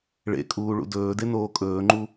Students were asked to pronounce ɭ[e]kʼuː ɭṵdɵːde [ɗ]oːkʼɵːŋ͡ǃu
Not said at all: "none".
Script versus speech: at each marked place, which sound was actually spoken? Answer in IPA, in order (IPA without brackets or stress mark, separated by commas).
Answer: ḛ, n